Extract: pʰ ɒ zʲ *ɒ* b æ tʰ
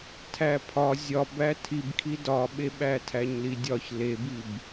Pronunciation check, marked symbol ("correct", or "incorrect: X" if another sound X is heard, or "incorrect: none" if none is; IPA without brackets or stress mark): correct